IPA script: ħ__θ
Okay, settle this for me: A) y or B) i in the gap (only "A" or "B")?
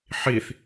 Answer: B